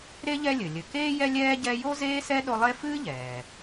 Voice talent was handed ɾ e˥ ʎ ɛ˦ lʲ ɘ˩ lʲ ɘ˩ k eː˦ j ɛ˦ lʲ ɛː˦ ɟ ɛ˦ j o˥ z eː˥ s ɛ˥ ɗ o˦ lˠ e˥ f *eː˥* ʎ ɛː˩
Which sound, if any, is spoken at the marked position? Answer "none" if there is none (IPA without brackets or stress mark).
ɨː˥